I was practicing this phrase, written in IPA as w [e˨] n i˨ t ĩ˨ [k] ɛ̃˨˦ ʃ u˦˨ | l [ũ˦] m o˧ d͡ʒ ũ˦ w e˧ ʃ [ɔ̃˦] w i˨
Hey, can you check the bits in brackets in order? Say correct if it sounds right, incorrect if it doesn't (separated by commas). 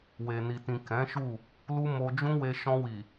correct, correct, incorrect, incorrect